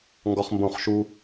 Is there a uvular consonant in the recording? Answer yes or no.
yes